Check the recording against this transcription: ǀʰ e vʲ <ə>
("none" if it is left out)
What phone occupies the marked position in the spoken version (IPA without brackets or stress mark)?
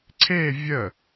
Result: ə